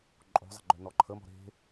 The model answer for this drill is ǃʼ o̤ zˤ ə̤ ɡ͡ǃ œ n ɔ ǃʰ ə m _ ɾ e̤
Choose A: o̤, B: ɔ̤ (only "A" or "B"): B